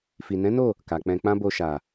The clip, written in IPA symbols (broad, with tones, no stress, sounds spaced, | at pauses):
f i˨ n ɛ̃˨˦ n o˦˨ | k a˨ k͡p ɛ̃˧ k͡p ã˦ b o˧ ʃ a˨